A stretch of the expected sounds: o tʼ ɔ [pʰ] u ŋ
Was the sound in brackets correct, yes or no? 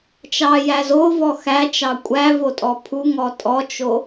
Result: yes